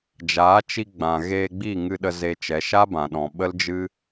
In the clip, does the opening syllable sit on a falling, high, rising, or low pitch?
rising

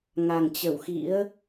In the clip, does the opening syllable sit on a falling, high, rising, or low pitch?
low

